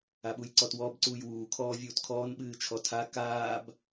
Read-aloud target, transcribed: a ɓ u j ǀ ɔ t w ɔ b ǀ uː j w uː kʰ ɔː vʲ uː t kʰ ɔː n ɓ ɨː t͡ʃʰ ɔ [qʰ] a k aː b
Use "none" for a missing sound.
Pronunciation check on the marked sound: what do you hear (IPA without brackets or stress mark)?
tʰ